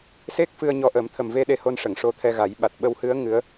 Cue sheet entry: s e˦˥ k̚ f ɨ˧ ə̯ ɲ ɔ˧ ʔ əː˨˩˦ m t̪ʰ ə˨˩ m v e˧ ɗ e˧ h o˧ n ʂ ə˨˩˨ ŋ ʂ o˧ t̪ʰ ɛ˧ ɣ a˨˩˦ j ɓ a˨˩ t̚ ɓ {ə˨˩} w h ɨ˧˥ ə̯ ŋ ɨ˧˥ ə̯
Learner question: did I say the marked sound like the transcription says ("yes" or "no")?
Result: no